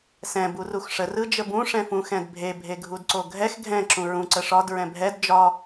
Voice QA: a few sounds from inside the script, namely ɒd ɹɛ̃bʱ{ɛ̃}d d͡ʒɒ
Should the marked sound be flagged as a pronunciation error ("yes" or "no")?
yes